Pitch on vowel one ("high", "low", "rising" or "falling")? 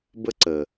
high